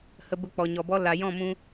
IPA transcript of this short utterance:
h ə˧ b ə˦˨ k͡p ɔ˨ ɲ ɔ˨ b ɔ˦ l a˨ j ɔ̃˦˨ m ũ˧

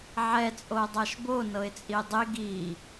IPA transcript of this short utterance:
ʕ ɛ t͡sʼ o dˤ a ʃ b o n ɤ ɪ̯ t͡sʼ i dˤ i ɡ i

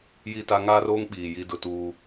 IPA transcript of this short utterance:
j i˦ t a˦ ŋ aː˦ r oː˦ ŋ ɓ iː˨ j i˦ d ʊ˦ t uː˦

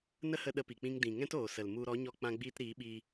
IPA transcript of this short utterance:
n ə˦ h ə˧ ɗ ə˦ p i˨ k͡p ĩ˦ ŋ d ĩ˨ ŋ ɛ̃˦ t oː˨ s ə˨ l m u˧ ɾ ɔ˨˦ ɲ ɔ˧ k͡p ã˧ ɡ͡b iː˧ t ɾ iː˨˦ ɓ iː˧

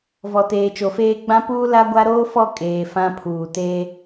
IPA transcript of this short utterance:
v ɔ˨ t eː˨ t͡ʃ o˨ f eː˦ ɡ͡b ã˦ p uː˦ l a˦ ɡʷ a˦ ɾ oː˦ f ɔ˦˨ kʼ eː˨ f ã˦ pʰ uː˨ t eː˦

